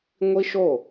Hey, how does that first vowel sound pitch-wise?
high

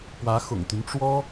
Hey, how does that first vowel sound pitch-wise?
rising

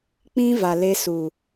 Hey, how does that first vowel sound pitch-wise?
high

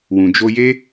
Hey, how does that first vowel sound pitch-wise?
low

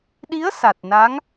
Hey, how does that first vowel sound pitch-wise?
rising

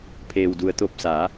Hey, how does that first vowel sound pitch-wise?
low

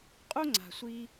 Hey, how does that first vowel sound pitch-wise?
high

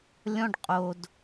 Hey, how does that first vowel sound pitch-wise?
high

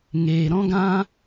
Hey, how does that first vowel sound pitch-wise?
low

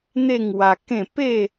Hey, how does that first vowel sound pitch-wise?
falling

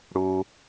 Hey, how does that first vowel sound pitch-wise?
low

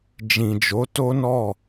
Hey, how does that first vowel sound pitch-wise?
low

